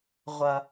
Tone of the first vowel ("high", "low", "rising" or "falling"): low